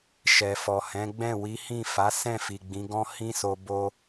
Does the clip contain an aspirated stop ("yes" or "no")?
no